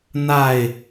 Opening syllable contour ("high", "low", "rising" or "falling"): falling